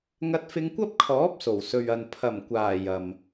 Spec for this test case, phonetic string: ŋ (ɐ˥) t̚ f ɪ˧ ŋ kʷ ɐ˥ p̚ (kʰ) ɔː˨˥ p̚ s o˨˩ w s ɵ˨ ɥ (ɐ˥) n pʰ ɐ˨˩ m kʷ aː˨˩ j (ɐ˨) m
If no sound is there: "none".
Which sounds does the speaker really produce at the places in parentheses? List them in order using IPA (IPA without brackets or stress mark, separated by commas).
ɐ˧, kʰ, ɐ˨, ɐ˨